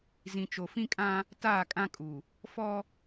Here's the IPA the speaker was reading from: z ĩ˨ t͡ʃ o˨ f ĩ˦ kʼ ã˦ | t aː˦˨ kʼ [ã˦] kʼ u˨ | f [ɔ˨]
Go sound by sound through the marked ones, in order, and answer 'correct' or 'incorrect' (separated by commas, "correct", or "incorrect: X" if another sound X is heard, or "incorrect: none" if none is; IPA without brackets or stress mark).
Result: correct, incorrect: ɔ˦